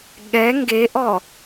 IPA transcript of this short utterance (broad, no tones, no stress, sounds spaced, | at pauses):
ɠ ɛ ŋ ɡ e ʔ ɔ